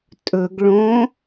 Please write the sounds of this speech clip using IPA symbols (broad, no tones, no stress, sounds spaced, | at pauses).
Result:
tʼ ɵ ɡ ɭ õ